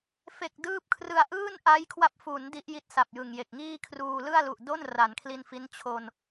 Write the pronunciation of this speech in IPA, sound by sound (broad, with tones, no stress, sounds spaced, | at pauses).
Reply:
f e˨˩ k̚ d ɯː˥˩ p̚ kʰ r ɯ˧ a̯ ʔ ɯː˥˩ n ʔ a˦˥ j kʰ w a˦˥ p̚ f u˩˦ n d i˦˥ ʔ j i˦˥ t̚ s a˨˩ p̚ j ɯ˨˩ ŋ j e˨˩ k̚ ŋ iː˥˩ kʰ r uː˧ l ɯ˥˩ a̯ l u˨˩ ʔ d o˥˩ n r a˩˦ n kʰ l i˧ n f i˦˥ n t͡ɕʰ o˧ n